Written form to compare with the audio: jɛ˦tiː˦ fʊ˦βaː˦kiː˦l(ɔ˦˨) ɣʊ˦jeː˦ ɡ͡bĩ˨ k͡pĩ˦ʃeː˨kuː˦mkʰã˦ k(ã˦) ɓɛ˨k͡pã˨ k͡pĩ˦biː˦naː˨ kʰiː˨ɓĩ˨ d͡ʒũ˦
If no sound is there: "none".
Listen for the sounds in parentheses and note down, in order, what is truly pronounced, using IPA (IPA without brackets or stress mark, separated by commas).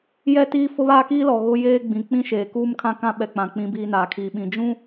ɔ˨, ã˦